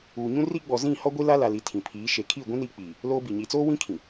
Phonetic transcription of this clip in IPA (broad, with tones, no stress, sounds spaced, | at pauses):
uː˨ ɲ ũ˦ r iː˦ ɡ͡b ɔ˨ z ĩ˦˨ h ɔ˦ ɡʷ i˦ l a˦ l a˨ l i˨ tʰ ĩ˨ pʰ iː˨˦ ʃ e˨ kʰ iː˦˨ ɡʷ ĩ˦ n iː˦ k͡p iː˨ | l oː˦ b i˨ ɲ i˨ t͡s oː˦ w ĩ˦ kʰ ĩ˨